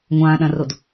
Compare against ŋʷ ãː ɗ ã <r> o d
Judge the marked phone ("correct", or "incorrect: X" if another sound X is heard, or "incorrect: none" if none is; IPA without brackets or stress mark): correct